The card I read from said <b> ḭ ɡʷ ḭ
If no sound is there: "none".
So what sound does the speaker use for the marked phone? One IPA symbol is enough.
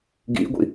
ɡ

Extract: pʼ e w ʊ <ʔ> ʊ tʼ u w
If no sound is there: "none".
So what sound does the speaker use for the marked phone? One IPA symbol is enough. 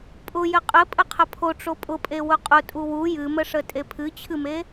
qʼ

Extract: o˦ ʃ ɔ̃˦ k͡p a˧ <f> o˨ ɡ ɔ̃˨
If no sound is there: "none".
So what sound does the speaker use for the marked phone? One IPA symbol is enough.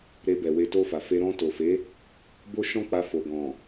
f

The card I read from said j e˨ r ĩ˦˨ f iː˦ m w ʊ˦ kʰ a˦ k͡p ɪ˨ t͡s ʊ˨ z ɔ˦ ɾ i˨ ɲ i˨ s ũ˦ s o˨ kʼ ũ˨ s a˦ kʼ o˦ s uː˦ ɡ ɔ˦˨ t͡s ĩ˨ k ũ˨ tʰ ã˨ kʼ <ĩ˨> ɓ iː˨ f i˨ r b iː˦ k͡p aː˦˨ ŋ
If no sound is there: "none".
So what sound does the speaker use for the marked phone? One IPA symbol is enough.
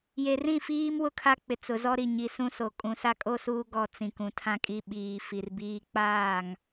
i˨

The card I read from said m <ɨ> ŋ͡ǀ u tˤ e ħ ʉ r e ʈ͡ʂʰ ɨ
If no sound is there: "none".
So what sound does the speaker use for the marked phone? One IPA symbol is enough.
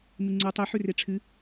ɨ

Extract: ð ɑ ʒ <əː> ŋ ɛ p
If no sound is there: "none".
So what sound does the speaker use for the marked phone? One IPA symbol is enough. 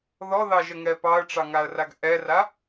ə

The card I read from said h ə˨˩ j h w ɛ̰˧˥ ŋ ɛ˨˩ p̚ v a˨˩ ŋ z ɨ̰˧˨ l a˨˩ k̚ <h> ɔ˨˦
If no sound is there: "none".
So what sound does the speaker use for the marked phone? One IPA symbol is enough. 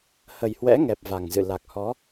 h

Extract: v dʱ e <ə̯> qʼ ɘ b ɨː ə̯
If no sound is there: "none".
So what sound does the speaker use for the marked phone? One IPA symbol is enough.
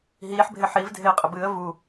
ə̯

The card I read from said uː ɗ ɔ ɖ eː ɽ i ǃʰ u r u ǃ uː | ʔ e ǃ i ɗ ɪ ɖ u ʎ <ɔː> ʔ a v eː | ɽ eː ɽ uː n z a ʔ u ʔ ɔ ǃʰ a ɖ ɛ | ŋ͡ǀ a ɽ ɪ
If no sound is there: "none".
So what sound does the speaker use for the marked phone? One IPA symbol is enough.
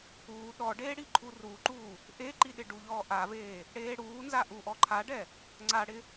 ɔː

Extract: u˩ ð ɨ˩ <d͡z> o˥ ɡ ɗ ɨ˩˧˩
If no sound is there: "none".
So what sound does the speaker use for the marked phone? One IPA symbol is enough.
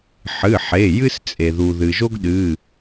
ʒ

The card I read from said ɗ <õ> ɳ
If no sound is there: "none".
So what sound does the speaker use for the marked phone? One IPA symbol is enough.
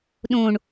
õ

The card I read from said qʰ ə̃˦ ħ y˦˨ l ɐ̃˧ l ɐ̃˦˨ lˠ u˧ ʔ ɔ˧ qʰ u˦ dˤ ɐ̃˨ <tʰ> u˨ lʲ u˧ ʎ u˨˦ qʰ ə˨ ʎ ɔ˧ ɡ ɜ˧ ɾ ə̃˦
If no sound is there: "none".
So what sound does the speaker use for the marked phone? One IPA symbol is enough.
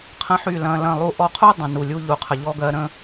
n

